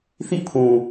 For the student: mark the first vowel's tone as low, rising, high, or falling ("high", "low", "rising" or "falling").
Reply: falling